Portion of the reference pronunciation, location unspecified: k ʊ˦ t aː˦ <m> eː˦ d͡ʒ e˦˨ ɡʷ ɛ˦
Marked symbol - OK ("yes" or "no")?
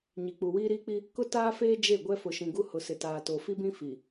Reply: no